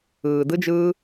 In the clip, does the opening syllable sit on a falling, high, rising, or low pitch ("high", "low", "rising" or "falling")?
low